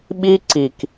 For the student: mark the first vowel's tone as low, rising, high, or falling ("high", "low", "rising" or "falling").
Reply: high